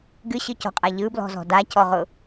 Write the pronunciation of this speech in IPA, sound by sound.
ɡ ɨ ɕ ɨ c ɔ̤ qʼ a ʎ ɯ b l ɔ̤ z ɔ̤ d a c ɔ ʁ ʊ

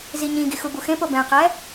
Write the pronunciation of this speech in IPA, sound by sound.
z i ɲ ĩ ɡ i x u b u x ẽ p o b ɛ̃ q ɛ

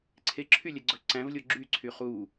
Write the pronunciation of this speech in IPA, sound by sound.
ǀʰ e ǁʰ y lʲ ɛ ɡ͡ǀ ɵ ǀ æ̃ v lʲ o ɡ͡ǁ y ǀʰ y χ u

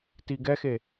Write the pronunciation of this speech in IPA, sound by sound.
t i ɡ ɛ x e

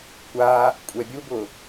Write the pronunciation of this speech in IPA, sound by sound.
kʷ a | kʷʼ ɛ bʲ u b ʊ

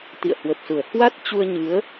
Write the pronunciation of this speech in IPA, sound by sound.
t̪ ḭ˧˨ ə̯ h w ə˨˩ p̚ s u˧˩ ə̯ h w a˦˥ t̚ t͡ɕ u˧ ə̯ ɲ ɨ˨˦ ə̯

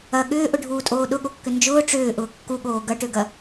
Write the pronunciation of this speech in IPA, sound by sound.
ɐ ɠ ʏː ʔ ʊ ɖʱ uː tʼ oː ɗ ʊ ɠ o kː ʏ n d͡ʒ ʊː ʈ͡ʂ ʏː ʔ ʊː kː u ɠ oː ɡ ɐ ʈ ø ɡ ɐ

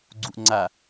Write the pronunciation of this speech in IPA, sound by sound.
ɡ͡ǀ u ʔ ŋ͡ǀ a

